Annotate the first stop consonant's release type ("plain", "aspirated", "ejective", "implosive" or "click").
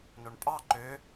ejective